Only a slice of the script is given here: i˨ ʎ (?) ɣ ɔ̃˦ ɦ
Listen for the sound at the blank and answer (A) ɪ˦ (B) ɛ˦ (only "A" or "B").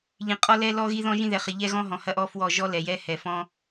B